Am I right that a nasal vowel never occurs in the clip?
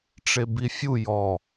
yes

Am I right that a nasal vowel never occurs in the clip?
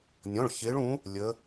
no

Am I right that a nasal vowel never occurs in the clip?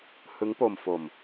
yes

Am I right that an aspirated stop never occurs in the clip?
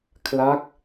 no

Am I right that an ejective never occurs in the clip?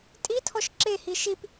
no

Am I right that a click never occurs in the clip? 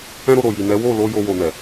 yes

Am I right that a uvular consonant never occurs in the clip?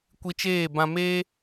yes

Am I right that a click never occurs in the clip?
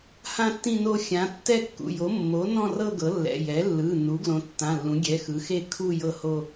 yes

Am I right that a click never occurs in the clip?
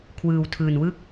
yes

